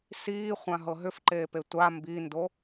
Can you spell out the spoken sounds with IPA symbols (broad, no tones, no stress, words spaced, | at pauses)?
siːχʷã ɦɤɦʏfǃeːpe tʷa mbindo